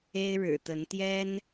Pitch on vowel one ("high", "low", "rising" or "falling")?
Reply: high